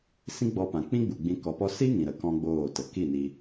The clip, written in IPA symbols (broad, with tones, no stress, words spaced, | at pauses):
sĩ˦ɡ͡bɔ˧pã˨ k͡pĩ˦ɡ͡bu˨ɡ͡bĩ˧ kɔ˧pɔ˦ si˦ŋĩ˨ ɾə˨ kɔ̃˦ɡ͡boː˦˨tə˨ ki˦˨ni˧